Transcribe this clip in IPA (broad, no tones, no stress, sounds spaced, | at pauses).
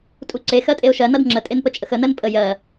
tʼ u ǀ e x ɜ tʼ e ʊ̯ ʃ ɜ n ʌ d ŋ͡ǁ ə tʼ e n p ə t͡ʃʼ ə x ə n ɜ n pʼ ə j ɜ